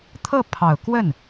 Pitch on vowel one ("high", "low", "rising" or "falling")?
falling